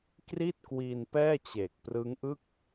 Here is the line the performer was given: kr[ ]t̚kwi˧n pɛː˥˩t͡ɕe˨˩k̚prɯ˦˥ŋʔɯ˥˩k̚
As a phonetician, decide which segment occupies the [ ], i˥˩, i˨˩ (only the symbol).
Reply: i˥˩